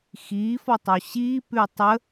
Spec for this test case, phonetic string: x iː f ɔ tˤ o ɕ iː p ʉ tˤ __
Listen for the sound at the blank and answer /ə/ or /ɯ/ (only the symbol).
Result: ə